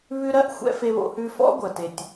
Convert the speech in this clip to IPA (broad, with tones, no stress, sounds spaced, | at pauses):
β ʉ˧ ɾ ɜ˥˩ ʔ xʷ ɛ̰˧ f e˧ β o̰˧ h ʉ˧ f ɔ̰˥ ɡʷ ɜ˩ t e˩ tʲ